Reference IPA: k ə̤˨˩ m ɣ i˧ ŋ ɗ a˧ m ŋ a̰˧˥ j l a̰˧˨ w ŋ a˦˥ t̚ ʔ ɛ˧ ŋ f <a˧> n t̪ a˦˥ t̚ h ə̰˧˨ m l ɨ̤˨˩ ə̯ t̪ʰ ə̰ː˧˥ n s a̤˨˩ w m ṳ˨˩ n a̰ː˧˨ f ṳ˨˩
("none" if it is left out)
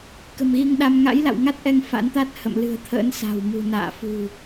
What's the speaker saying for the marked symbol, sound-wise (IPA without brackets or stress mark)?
a̰˧˥